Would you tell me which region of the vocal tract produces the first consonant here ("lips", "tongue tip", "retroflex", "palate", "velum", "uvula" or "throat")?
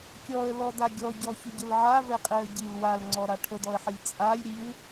velum